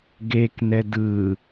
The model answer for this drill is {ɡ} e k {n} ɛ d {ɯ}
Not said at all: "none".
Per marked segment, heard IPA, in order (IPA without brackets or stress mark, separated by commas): ɡ, n, ɯ